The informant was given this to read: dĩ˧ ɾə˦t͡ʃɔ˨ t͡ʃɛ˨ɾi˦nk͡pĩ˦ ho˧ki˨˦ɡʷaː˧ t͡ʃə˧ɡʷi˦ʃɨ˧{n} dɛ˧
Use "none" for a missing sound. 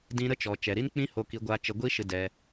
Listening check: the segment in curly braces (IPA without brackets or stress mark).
none